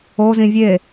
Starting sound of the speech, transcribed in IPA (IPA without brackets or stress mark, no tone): o